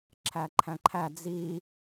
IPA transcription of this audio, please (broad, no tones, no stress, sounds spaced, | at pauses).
ǁʰ æ ǃʰ æ̃ ǃʰ æ d͡z i